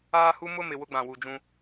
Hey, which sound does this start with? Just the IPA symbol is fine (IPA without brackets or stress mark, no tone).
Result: aː